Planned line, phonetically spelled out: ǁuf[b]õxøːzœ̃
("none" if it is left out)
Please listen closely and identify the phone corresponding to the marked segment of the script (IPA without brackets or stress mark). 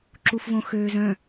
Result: v